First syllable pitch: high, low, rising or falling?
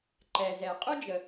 low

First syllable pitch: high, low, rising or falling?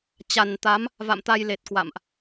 low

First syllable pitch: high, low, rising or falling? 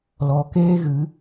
low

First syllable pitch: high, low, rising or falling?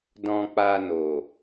low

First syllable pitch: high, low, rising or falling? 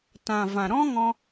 low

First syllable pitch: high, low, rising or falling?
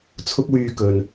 high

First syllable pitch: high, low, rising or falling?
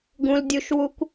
low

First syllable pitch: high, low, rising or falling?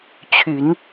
rising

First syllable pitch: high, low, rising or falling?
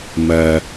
low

